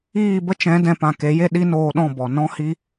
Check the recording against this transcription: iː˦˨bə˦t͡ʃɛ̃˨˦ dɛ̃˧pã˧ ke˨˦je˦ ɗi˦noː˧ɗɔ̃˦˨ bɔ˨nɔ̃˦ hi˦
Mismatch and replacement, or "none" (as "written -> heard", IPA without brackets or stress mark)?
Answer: none